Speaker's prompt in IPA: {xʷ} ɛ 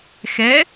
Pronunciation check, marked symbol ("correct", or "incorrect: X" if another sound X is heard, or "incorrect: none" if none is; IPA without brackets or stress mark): incorrect: x